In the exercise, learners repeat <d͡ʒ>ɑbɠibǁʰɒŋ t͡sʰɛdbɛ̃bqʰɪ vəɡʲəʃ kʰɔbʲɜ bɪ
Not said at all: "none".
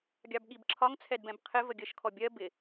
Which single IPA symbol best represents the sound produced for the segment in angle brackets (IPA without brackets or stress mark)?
ɡʲ